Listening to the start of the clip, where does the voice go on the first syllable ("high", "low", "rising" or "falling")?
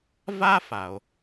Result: high